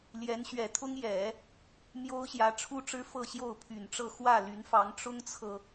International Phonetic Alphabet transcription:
l j ɛ˧˥ n ɕ ɥ ɛ˨˩ t̪ʰ ʊ˥ ŋ j ɛ˨˩˦ | m j o˥ ʊ̯ ɕ j ä˧˥ ʈ͡ʂʰ u˥ ʈ͡ʂ ɻ̩˥ f ɤ˥˧ ɕ j o˥˩ ʊ̯ pʰ y˨˩ n ʈ͡ʂ ɤ˥˧ x w ä˥˩ l y˧˥ n f ɑ˧˥ ŋ ʈ͡ʂ ʊ˥ ŋ t͡sʰ ɤ˨

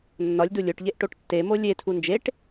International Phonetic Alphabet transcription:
nː ɒ lʲ d u lʲ o ʈ ʎ e ʔ ʈ o ʈ tː e m o lʲ e tʰ u n d͡ʒ e ʈ

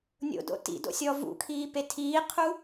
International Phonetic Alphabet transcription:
nʲ o̰ d o̰ t ḭ d o̰ sʲ ɔ v ṵ kʰ iː p e tʰ iː qʰ u

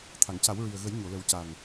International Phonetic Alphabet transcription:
t̪ʰ a˨˩˨ ŋ c a˨˩˦ w ɹ i˨˩ ə̯ ɣ ə˨˩˦ j ɲ o˨˩˨ l ə˨˩˦ w c a˨˩ n

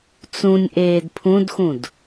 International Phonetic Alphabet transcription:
t͡s ũ nʲ ʔ eː d pʰ ũ d x ũ d

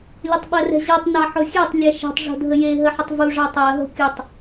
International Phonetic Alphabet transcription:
lʲ o tˤ ɓ ɜ r ɛ̤ ʑ ɜ tˤ n ɑ ħ ʊ xʲ ɛ tˤ lʲ ɛ ʃ e̤ tˤ ʐ o̤ dʱ ə j e ɦ ə ħ ʊ tˤ v u ʐ ɑ tˤ ɜ ɦ o̤ kʲ ʊ tˤ

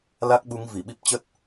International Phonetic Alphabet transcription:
l a˦˥ k̚ ɓ u˨˦ ŋ v i˧˩ ɓ i˦˥ p̚ t͡ɕ ə˦˥ t̚

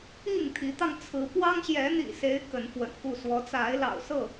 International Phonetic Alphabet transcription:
i˥˨ ŋ t̪ʰ i˨˦ t̪ ɑ˧ ŋ t͡sʰ ɹ̩˨˦ p w ɑ˦ ŋ ɕ j ɛ˨˦ n̪ ḭ˨˩ s e˨˦ ɪ̯ k ə˨˦ n f w ə̰˨˩ n k u˥˨ s w ɔ˨˦ t͡s a˨˦ ɪ̯ l ɑ̰˨˩ ʊ̯ s ɤ˥˨

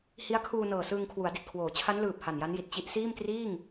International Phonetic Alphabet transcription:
h i˦˥ a̯ kʰ uː˧ n ɤː˨˩ s ɯː˧ ŋ kʰ w u˩˦ a̯ d i˨˩ t̚ kʰ w oː˩˦ t͡ɕʰ a˦˥ n l ɯː˨˩ p̚ h a˨˩ n j a˦˥ n j i˨˩ t̚ t͡ɕ i˦˥ ʔ s iː˥˩ m t r iː˥˩ ŋ

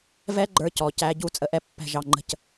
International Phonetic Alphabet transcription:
v ɛ˦ ɡ͡ǃ ə˞˧ c ɔ˨ c æ˧ ɟ u˦˨ t͡sʼ ə˧ ʔ ɛ˧ pː ɛ̤˧ ʒ ɑ˧ ŋ͡ǃ ə̤˦ c

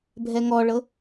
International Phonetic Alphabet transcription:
bʱ ɛ ŋ ɔ ɭ ɤ

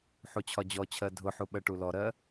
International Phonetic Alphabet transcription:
ħ u t͡ɕʰ ɒ d͡ʑ ɔ t͡ɕʰ ɜ dʱ ʊ ħ u ɓ ɜ ʈ u l ɔ ɾ ɜ

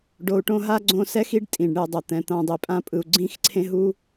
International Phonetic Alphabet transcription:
ɖ o˨ u̯ ʈ õ˦ ɦ a˥ ɡ͡ǀ õ˦ s ɛ˥ x i˥ ɖ tʼ ĩ˩ ɖ ɳ e˨ dˤ ʌ˩ t̪ ɛ̃˩ t̪ ã˨ dˤ i˩ pʼ ã˦ pʼ ɯ˨ u̯ ɡ͡ǀ ĩ˦ x ǀʰ ẽ˦ ɦ u˥

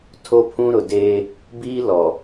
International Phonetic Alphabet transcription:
tʰ o˦ pʰ ũ˦ ɾ ʊ˨ d eː˦ | b iː˦ l ɔ˨

